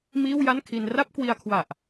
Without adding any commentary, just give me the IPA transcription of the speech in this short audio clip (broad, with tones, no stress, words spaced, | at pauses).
miː˥˩wja˥˩nkʰi˧n ra˥˩p̚kwi˧a̯kʰwa˨˩ʔ